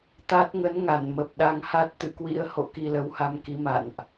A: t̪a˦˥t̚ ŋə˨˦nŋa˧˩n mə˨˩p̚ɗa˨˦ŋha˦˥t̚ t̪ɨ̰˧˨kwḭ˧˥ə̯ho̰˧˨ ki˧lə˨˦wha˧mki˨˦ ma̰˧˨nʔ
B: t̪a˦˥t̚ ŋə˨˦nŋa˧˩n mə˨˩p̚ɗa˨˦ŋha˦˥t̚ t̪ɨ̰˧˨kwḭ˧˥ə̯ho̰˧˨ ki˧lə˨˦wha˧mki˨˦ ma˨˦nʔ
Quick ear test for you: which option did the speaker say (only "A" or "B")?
A